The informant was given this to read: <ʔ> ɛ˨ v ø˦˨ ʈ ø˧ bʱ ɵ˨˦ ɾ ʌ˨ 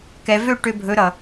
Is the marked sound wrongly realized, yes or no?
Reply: yes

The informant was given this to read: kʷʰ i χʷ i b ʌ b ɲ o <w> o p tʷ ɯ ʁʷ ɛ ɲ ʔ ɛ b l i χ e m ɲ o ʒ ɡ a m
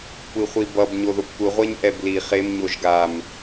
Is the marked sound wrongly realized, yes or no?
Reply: yes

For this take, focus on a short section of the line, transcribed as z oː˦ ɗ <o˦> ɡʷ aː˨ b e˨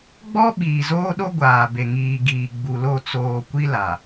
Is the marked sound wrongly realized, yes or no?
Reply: no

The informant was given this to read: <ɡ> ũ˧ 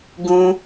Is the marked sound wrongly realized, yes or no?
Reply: no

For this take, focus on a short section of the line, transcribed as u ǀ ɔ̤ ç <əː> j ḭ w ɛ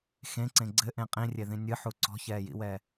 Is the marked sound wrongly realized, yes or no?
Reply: yes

